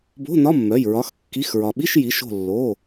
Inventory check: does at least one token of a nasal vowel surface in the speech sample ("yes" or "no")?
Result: no